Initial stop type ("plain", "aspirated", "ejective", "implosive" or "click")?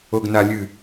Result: plain